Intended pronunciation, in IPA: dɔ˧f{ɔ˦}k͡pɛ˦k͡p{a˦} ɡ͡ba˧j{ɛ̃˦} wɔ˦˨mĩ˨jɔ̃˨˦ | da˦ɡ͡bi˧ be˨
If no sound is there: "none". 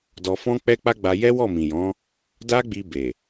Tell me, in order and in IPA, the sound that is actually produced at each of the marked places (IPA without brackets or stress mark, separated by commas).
ɔ̃˦, a˦, ɛ˦